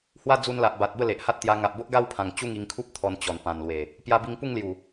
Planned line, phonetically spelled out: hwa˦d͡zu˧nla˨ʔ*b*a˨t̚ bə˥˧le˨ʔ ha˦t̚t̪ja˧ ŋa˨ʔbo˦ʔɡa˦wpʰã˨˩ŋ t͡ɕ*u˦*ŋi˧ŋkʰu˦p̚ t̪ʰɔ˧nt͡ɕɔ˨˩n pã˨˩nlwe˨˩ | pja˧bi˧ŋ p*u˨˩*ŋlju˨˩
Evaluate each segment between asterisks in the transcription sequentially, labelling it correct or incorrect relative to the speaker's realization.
correct, incorrect: u˥˧, incorrect: u˥˧

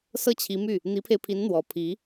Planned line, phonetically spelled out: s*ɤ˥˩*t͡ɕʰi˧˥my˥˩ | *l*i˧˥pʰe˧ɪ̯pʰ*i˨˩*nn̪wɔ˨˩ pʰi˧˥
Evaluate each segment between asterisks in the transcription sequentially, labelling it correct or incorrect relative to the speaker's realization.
correct, incorrect: n̪, incorrect: i˧˥

